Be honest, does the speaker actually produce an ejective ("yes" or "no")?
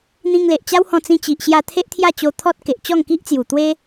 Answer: no